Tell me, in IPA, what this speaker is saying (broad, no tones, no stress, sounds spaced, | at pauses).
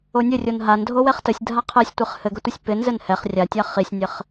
o nʲ ɘ rʲ o n ɦ a n dʱ o w ɛ χ t ə sʲ dʱ a qʰ ɛ sʲ tʷ ɨ χ h ɘ ɡ ə tʷ ɘ sʲ p ɪ n z ɘ n h ɛ χ rʲ a tʲ a χ i sʲ nʲ ɘ χ